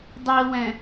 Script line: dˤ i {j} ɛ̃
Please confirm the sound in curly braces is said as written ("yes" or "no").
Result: no